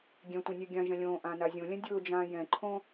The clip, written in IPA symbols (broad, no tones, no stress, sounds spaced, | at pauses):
ɡʲ ɛ̃ tʷ ɛ̃ nʲ ɛ ɡʲ ã ʒ ɛ̃ lʲ õː ʔ ãː n a zʲ õ lʲ ɛ̃ dʲ ʊː d͡ʒ ãː j ɛ̃ ǃʰ õ